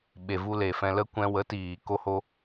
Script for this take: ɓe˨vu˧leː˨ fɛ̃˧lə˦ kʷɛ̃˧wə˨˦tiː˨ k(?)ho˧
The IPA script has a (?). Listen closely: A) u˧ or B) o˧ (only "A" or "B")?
B